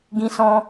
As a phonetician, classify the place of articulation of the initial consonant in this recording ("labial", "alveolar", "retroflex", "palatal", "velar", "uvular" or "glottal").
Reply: velar